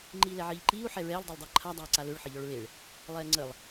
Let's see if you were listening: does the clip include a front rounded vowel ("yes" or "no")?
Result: yes